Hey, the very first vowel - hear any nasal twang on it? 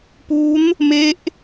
no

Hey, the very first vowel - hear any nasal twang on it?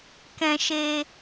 yes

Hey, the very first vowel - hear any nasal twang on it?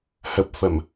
no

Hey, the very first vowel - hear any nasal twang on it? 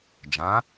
yes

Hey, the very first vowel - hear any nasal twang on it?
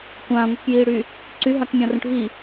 yes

